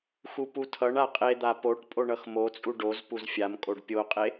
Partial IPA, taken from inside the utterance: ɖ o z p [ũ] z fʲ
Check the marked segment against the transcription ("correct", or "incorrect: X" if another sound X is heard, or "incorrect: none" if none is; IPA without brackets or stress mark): incorrect: u